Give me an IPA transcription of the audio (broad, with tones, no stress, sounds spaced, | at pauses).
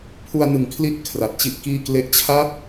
pʰ u˧ a̯ n ɯ˩˦ ŋ kʰ l i˦˥ t̚ kʰ r a˨˩ t̚ t͡ɕ i˥˩ ʔ k iː˥˩ k l e˦˥ ʔ t͡ɕʰ a˥˩ t̚